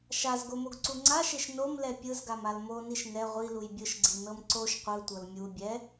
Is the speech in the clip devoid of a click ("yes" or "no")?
no